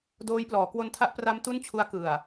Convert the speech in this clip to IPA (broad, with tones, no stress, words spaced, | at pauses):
doː˦˥jplɔː˩˦ kwo˧ntʰa˦˥ʔpra˦˥m tu˥˩nt͡ɕʰu˦˥a̯ kɯ˨˩a̯